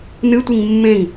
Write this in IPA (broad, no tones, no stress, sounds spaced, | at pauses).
n ɨ tʷ i ŋ mː ẽ ŋ